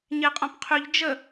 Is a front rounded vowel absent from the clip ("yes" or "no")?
no